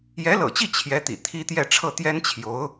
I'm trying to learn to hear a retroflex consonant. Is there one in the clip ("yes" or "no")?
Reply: yes